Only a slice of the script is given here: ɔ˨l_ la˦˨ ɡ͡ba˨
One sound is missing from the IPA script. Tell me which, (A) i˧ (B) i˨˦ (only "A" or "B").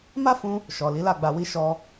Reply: B